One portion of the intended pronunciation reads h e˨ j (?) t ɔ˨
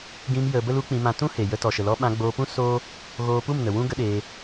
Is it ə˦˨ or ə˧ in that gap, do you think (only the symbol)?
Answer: ə˧